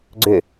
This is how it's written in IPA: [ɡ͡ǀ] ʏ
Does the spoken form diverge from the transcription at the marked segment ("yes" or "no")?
no